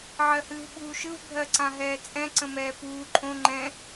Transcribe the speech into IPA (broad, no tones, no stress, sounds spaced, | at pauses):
ʕ ɜ h ɨː v ɓ uː ʃ ɯ v bʱ ɜ ǀ ã ɦ ɛː t͡sʼ ɛ̃ ǀ ə̃ m ɛː p uː ǃʰ õ ŋ͡ǃ ɛ̃